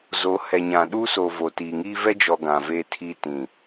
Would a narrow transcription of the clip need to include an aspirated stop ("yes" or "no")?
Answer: yes